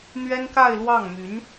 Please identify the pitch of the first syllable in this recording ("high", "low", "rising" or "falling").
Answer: high